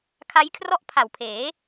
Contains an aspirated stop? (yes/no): yes